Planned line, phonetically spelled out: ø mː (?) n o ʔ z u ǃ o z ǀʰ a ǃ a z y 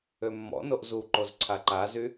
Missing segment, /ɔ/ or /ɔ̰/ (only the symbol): ɔ̰